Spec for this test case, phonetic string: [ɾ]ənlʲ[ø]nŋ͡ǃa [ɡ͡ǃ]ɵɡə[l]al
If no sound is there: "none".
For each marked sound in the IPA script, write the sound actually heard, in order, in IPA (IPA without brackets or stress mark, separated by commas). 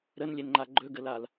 ɾ, e, ɡ͡ǃ, l